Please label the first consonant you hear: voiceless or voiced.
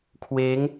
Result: voiceless